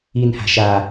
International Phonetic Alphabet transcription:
i n h a̤ ʃ a

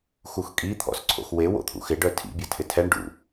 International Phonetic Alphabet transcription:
x u x kʼ i t̪ʰ ɔ̰ s ǀʰ o̰ x w e w o̰ t̪ʰ ṵ x ɪ ɖ œ tʰ ḭ bʲ ɐ tʰ ɪ tʰ ɛ ɳ ɖ ṵ

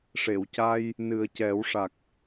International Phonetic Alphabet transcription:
ʂ e˨˩˨ w c a˧ j | n ɨ˨˩ ə̯ c ɛ˨˩˦ w ʂ a˨˩ k̚

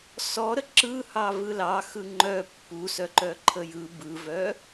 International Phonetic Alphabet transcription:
s ɔ ɾ ə ǁ ɯ h ɑ v ɯ l ɑ x ɯ ŋ͡ǃ œ pː u s œ ǃ œ ǃʰ ə j ɯ b ɯ v œ

